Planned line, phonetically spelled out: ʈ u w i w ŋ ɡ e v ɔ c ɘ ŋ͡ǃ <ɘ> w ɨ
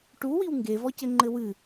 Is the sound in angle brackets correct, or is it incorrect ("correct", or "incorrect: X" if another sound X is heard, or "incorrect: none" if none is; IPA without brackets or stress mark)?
correct